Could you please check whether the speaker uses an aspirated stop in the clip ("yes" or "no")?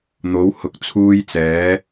yes